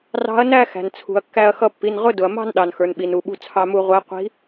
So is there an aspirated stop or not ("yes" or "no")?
yes